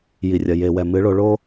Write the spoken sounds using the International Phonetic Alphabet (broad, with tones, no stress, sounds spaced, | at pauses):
j i˨ rʲ ɐ˨ j e˨ w ɛ˨ m ɨ˨˦ ɭ o˧ ɭ o˦